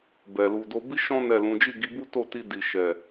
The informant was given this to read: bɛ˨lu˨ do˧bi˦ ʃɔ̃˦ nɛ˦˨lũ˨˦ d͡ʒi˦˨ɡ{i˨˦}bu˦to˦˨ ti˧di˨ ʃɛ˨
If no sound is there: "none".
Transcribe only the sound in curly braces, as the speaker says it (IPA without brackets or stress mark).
i˨˦